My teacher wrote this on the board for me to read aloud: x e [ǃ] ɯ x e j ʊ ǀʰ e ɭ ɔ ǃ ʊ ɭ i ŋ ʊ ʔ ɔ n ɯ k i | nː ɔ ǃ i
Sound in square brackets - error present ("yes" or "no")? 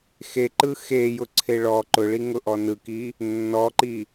no